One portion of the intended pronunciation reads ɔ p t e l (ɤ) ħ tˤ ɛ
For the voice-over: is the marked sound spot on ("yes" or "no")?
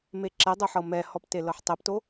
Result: yes